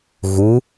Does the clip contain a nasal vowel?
no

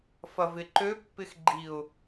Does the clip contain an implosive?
no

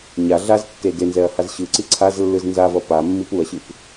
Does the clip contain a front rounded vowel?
no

